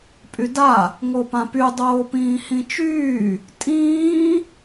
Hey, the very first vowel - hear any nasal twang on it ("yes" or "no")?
no